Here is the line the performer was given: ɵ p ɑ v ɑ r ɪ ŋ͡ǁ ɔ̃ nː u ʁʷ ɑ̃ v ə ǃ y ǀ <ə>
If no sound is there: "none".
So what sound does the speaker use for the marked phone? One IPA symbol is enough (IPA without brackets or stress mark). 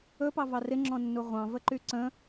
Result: ə̃